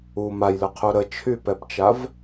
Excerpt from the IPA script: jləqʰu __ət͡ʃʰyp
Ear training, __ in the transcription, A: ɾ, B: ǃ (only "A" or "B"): A